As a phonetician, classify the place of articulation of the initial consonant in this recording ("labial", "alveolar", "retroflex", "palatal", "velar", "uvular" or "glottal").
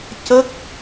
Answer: palatal